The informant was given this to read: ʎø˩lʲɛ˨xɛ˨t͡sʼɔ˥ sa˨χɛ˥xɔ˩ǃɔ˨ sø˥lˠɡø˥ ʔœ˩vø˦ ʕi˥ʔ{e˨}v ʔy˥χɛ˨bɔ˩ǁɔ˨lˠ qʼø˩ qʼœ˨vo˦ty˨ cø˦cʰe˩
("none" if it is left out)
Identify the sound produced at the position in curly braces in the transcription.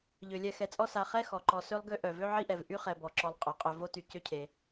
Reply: ɛ˨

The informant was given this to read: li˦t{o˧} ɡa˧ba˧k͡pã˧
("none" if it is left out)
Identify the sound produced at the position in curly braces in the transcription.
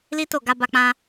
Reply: o˦˨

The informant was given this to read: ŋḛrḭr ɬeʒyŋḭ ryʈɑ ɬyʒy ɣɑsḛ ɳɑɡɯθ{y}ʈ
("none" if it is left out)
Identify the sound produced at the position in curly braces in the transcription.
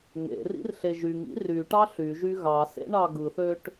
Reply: ø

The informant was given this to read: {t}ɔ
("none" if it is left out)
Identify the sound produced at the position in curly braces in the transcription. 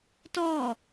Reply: t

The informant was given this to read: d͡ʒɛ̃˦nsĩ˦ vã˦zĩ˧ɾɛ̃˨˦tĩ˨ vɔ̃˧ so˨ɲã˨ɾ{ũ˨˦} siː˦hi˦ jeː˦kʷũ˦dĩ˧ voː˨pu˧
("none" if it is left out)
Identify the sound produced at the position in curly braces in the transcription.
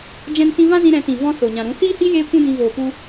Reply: ũ˨˦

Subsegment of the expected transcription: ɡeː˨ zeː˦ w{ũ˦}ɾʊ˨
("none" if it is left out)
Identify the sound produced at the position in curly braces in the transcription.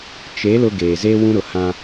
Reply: ũ˦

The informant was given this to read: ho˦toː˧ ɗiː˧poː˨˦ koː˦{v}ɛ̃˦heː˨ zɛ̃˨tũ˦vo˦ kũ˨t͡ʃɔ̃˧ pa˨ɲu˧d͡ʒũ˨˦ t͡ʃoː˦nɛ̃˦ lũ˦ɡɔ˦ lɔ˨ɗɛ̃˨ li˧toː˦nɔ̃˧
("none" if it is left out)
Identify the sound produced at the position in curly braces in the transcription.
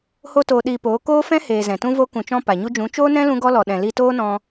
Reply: f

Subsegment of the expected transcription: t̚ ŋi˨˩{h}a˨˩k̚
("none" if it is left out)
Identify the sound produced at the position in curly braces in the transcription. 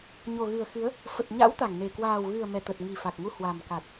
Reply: f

